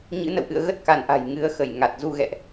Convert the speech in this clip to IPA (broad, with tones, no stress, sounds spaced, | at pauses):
ɲ ɨ̰˧˥ n ə̰˧˨ w ʔ ɨ̰˧˨ ə̯ ɣ ə˦˥ t̚ k a˧˩ n ʔ a̤˨˩ j ŋ ɨ˨˦ ə̯ x ə˧˩ j ŋ a˨˩ t̚ z u˧ ɣ ɛ̰˧˨ ʔ